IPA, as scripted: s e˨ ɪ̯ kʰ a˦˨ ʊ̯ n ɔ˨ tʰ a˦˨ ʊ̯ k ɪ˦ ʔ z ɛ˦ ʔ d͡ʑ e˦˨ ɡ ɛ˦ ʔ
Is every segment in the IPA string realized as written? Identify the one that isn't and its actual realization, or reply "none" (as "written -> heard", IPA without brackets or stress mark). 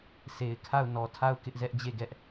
none